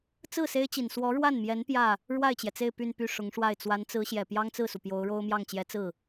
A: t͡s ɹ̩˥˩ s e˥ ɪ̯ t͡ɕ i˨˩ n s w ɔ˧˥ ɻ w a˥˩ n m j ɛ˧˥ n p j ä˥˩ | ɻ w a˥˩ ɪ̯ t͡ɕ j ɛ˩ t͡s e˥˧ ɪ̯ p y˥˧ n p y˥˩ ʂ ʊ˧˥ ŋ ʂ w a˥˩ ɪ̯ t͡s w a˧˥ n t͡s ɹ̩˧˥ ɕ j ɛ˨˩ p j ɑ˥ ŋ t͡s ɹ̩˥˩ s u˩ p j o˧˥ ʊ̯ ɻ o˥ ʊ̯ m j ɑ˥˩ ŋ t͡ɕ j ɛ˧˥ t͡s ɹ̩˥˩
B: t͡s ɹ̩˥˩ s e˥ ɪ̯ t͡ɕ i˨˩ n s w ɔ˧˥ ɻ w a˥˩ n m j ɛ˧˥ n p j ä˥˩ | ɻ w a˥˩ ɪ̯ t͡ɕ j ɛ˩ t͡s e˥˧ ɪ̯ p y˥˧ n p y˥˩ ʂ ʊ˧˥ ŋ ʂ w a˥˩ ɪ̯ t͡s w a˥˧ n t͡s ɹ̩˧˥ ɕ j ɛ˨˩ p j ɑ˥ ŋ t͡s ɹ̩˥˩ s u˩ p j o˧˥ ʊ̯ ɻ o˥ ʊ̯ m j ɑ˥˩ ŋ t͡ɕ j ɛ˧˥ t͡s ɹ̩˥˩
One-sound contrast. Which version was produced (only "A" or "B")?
A